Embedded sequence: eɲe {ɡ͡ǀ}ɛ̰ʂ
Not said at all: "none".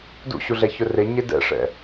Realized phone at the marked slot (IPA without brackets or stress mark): d